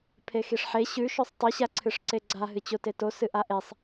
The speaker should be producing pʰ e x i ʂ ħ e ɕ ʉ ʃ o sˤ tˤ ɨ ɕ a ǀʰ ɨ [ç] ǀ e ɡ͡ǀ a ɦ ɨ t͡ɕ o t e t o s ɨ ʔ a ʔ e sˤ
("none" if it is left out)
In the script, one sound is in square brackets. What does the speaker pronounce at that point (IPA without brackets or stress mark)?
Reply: ʂ